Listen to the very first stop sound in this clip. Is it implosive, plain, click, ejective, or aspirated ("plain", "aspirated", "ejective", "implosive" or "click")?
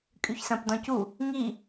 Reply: ejective